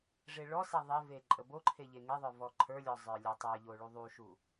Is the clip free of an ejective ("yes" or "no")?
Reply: no